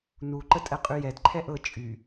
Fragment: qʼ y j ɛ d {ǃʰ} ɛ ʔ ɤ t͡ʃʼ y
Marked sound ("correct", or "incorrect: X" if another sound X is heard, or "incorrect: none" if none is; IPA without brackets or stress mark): correct